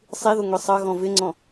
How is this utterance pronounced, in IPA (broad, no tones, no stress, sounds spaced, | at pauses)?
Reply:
sˤ i ð ʊ ŋʷ i sˤ ʌ ɣ ɔ̃ v ɪ ŋ͡ǀ ɔ̃